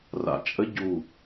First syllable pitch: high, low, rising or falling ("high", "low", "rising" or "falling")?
low